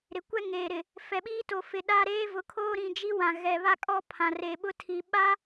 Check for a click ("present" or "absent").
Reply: absent